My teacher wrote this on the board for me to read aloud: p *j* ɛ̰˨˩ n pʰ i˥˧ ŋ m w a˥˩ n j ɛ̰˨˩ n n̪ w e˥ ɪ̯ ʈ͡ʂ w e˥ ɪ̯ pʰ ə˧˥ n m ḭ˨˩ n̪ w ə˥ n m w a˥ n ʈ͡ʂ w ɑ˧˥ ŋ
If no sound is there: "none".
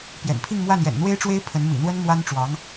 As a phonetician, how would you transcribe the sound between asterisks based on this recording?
j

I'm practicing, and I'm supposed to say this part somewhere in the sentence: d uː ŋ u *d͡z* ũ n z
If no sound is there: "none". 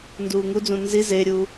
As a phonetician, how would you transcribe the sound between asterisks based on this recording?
d͡z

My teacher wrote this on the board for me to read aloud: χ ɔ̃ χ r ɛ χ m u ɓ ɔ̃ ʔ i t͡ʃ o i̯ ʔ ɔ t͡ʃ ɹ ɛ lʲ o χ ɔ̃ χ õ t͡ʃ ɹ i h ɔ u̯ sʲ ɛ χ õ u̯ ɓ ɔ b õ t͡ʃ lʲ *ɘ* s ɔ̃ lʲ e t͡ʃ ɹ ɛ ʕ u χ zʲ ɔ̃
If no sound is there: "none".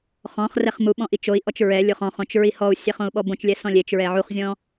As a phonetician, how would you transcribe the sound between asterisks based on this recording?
ɛ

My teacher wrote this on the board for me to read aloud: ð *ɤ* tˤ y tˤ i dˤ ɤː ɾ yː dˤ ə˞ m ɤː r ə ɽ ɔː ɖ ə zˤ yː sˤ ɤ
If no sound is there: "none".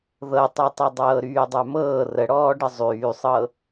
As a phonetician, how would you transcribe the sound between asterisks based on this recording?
ɤ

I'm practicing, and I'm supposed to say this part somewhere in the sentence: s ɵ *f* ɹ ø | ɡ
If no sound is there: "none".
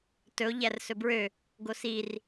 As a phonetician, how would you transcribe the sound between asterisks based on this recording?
b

